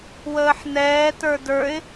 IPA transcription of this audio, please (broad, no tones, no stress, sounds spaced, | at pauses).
w əː ħ n ɛː t ə˞ d ə˞ ɪ̯